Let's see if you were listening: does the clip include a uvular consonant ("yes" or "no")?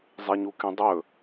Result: no